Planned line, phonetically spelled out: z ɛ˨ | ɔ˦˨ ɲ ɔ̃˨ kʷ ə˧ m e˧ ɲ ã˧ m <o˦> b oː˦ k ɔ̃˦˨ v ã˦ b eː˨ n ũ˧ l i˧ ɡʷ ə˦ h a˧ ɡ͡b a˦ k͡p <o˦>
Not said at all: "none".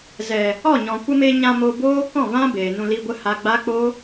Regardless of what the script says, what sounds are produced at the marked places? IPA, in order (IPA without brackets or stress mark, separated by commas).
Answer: o˧, o˦